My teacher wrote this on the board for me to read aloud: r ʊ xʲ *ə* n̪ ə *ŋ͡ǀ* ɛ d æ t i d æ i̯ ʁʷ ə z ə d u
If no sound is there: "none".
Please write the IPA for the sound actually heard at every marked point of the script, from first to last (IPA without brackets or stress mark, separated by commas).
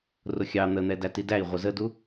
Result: ɑ, n̪